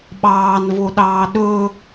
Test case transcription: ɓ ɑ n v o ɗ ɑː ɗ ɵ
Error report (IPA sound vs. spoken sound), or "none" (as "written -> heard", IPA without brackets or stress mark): ɑ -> ɑː